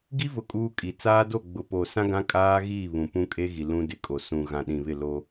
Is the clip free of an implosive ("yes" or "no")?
no